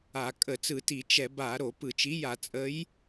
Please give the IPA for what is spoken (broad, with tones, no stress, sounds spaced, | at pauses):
a˧˩˧ kʼ ə˧˩˧ t͡s ɯ˧˩˧ t i˧˩˧ t͡ʃ ɛ˧˩˧ b a˧˩˧ ɾ o˧˩˧ p ɯ˧˩˧ t͡ʃ i˨˥ j a˧˩˧ t͡sʼ ə˨˥ j